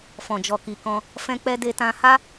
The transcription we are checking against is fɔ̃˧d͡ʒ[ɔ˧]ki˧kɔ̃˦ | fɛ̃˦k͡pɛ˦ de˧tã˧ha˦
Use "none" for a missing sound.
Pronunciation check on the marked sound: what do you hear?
ɔ˧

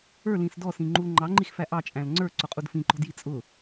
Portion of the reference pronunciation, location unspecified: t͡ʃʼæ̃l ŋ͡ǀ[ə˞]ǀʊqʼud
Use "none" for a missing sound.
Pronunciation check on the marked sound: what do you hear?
ə˞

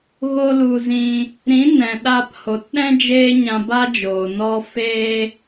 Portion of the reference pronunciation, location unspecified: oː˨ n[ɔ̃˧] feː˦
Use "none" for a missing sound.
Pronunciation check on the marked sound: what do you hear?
ɔ˧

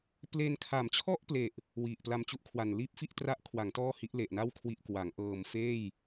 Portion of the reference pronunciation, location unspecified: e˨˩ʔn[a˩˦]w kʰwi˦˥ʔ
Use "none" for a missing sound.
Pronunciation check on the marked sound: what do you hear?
a˥˩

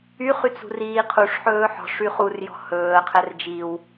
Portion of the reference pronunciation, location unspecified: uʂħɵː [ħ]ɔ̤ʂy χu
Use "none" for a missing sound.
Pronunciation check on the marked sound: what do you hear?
ħ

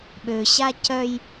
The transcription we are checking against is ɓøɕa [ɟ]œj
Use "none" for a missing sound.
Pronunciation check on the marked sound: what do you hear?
c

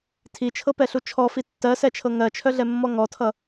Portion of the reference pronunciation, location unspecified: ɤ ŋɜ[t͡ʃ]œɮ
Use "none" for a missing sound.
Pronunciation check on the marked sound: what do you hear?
t͡ʃʰ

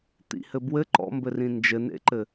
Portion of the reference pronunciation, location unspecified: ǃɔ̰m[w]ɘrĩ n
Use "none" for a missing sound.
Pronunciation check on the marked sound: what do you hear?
b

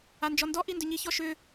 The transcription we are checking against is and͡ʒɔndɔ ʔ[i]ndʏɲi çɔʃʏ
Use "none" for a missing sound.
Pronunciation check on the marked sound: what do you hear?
i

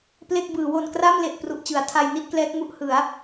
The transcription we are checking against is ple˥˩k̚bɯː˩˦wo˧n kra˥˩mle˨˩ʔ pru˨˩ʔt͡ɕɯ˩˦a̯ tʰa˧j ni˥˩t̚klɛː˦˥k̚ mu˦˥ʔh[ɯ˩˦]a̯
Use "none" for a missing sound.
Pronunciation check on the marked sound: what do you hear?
ɯ˩˦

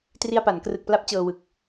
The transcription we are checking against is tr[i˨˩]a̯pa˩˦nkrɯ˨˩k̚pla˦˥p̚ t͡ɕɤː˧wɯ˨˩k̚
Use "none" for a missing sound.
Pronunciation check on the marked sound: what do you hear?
i˧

